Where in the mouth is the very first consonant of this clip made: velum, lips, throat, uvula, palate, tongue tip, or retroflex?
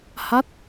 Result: throat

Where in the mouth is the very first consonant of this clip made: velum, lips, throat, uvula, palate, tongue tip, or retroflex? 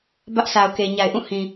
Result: lips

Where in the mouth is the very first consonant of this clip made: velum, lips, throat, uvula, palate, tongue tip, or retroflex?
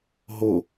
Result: throat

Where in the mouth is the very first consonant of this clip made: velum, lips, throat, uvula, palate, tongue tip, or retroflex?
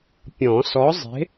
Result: lips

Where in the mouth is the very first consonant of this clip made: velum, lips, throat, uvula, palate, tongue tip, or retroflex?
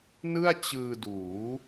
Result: tongue tip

